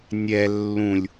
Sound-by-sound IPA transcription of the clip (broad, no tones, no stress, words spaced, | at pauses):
nʲɛ lːũlʲ